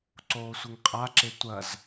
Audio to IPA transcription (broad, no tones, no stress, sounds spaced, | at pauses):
ǀ oː sʷ ɨ ŋ qʼ a ǁ e tʷ ɐ z